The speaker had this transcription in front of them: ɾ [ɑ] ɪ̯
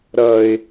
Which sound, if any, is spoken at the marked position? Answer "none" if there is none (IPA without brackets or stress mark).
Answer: ʌ